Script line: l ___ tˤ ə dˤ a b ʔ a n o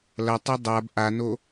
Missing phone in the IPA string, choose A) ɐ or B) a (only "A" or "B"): A